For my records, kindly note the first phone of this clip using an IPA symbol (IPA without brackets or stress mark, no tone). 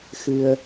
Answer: x